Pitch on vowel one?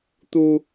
high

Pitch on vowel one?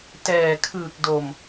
low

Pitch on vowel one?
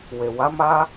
low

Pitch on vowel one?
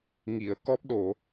low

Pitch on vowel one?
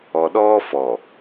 low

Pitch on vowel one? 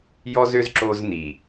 high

